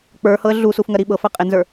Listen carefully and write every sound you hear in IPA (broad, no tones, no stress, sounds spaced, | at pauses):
k͡p ə˞ h ɤ ə̯ ɮ u s u f ŋ ɜ ɾ i ɓ ɤ f ɜ qʼ e n z ə˞